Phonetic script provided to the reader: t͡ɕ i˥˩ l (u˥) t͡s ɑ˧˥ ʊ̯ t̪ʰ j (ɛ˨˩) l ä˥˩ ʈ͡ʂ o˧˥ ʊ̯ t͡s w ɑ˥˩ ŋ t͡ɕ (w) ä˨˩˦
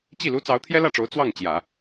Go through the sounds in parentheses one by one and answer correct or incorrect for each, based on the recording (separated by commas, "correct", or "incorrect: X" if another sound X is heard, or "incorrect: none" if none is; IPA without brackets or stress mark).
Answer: correct, incorrect: ɛ˥, incorrect: j